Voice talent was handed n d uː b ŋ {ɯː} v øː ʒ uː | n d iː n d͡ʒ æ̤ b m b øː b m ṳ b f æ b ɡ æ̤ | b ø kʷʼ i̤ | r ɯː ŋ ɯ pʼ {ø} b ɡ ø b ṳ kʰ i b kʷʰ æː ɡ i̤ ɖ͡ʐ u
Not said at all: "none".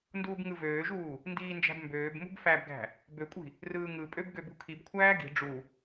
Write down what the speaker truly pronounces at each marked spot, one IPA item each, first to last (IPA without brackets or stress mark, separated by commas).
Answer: ɯ, ø